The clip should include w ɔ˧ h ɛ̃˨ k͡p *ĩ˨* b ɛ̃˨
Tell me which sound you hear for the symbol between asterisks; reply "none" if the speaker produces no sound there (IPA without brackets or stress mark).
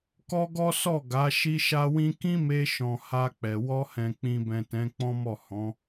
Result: ĩ˨